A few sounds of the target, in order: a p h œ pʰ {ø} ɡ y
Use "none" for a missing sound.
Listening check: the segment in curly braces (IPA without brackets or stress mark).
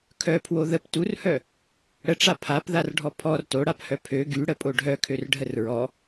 ø